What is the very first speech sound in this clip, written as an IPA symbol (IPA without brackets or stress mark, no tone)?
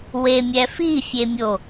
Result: w